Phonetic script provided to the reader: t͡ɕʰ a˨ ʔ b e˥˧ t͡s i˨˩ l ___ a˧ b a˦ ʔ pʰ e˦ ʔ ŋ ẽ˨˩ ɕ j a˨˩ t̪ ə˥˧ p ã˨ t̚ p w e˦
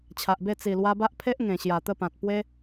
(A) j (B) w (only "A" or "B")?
B